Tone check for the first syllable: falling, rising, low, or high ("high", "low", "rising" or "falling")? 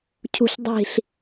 low